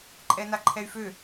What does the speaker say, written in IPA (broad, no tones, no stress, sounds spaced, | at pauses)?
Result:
ǃʼ ɛ n a ǃʰ ɛ y̯ f ø